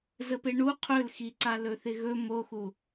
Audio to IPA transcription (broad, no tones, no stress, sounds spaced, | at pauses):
z ə p e ɳ u qʰ ɵ l x i ǀ a l ɵ θ ɪ ɣ ɵ m o x u